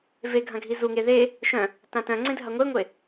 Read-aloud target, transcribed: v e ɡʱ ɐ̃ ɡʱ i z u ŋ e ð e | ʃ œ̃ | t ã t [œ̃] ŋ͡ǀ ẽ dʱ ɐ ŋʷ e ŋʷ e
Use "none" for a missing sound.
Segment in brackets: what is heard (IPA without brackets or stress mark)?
œ̃